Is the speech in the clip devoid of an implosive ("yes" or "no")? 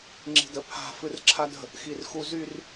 yes